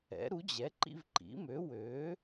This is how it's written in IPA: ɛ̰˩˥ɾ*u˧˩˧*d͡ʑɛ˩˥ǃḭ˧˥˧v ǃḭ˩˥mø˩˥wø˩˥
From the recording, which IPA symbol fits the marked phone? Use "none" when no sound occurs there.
u˩˥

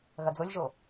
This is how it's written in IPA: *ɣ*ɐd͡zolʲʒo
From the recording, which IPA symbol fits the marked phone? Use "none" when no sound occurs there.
ɣ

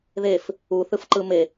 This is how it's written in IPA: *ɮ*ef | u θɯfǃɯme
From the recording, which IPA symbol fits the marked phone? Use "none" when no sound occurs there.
ð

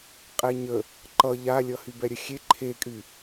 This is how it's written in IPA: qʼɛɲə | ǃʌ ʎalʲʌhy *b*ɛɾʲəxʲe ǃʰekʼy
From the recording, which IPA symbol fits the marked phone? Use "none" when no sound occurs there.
b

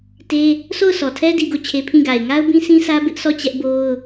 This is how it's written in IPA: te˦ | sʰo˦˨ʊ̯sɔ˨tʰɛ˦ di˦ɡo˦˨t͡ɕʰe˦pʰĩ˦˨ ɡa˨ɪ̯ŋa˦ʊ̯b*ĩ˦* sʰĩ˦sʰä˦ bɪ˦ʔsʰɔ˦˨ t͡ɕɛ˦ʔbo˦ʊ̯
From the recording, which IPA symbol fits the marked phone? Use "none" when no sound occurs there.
ĩ˦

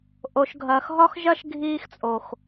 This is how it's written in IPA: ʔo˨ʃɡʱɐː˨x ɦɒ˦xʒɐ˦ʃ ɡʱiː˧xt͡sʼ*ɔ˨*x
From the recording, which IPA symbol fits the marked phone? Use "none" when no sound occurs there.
o˨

